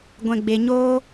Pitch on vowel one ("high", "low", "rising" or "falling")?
low